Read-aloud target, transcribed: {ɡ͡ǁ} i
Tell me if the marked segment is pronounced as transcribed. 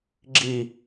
yes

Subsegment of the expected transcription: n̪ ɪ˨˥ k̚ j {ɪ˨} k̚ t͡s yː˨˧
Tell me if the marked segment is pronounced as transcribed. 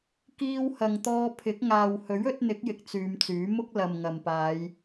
yes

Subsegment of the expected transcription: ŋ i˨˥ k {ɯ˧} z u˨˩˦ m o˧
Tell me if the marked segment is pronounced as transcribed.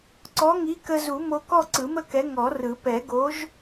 no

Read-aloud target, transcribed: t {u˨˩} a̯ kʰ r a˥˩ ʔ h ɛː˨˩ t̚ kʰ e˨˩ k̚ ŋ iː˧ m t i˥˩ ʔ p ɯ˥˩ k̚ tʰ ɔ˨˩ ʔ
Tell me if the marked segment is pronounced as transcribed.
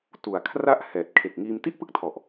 yes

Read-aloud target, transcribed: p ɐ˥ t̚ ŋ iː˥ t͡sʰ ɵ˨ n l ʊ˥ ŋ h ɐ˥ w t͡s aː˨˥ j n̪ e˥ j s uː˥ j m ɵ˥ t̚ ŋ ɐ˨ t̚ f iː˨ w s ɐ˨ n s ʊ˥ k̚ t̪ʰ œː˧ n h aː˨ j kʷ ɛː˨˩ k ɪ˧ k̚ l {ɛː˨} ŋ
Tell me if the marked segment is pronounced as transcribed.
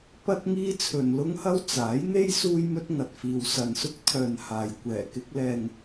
yes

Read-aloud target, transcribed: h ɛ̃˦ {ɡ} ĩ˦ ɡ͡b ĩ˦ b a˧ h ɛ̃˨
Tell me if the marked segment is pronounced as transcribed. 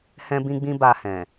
no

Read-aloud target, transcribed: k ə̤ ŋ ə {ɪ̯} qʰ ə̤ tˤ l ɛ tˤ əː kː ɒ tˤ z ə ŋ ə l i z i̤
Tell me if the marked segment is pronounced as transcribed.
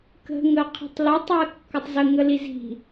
no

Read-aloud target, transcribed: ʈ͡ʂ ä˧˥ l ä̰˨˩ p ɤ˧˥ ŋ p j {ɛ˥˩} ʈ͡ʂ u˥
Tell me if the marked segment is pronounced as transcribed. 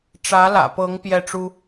yes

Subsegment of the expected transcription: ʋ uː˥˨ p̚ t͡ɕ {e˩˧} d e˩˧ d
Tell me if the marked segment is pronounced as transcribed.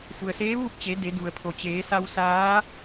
yes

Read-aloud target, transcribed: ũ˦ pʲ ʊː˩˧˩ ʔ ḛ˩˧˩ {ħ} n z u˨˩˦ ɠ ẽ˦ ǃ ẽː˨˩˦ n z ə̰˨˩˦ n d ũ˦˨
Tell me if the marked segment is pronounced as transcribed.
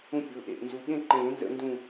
no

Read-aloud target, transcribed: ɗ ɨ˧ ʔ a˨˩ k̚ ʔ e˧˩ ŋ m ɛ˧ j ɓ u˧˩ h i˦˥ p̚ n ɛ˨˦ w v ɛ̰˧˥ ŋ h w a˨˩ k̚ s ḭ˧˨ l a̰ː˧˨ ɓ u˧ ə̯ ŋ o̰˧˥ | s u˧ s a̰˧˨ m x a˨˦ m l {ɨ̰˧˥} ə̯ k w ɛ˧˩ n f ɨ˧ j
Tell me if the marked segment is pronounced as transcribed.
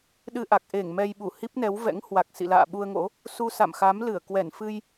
no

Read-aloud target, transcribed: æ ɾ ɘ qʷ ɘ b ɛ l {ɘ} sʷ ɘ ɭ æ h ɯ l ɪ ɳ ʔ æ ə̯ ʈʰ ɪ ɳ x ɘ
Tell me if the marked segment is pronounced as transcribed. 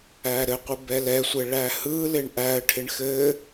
no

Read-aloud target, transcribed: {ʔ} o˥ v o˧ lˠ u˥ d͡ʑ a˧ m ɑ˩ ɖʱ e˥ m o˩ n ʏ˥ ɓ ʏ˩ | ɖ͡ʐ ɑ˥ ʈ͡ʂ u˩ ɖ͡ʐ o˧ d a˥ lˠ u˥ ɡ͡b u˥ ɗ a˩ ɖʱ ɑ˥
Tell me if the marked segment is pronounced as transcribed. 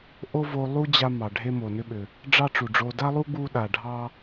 yes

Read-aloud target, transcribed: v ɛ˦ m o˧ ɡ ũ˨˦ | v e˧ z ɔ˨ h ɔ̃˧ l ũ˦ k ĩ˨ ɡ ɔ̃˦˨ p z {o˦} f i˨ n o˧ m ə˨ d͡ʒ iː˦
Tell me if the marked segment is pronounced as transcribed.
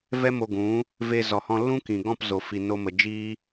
no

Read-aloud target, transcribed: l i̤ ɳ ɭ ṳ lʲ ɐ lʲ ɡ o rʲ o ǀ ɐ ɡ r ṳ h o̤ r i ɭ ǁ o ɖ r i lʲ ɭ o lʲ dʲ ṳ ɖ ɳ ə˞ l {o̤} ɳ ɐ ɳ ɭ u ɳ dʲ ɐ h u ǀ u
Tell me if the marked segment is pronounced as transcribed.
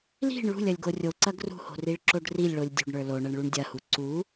no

